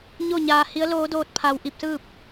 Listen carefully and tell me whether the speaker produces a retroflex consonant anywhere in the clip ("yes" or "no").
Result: no